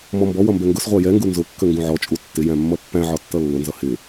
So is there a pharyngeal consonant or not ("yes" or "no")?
yes